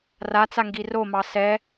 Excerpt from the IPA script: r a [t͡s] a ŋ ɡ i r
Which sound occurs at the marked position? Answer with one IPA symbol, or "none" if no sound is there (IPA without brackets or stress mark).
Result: t͡s